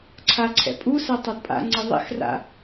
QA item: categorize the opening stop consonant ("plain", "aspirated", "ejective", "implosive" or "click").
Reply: click